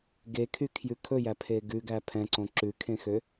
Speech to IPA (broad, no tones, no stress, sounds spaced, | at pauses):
ɡ e kʰ y kʰ j ʉ kʰ ɵ j æ pʰ e ɡ ʉ ɡ æ pʰ ɛ̃ ǀ õ ǁ ʉ kʰ ẽ x ø